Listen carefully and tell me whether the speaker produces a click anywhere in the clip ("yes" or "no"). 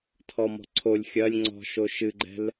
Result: yes